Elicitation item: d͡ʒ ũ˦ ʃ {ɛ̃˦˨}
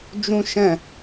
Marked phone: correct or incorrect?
correct